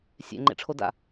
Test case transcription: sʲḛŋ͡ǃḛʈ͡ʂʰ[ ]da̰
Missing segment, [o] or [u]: o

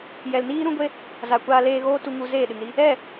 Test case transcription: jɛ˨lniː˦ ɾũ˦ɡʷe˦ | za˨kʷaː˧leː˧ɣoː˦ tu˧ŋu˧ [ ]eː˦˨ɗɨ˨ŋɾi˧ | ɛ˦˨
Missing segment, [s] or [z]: z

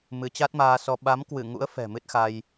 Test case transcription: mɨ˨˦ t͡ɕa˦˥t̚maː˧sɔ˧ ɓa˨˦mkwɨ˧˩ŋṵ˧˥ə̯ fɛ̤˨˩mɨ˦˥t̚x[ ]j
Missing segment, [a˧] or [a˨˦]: a˧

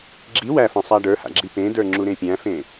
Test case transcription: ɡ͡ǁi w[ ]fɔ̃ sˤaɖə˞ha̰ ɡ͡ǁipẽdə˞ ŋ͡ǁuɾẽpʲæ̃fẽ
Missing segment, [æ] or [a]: æ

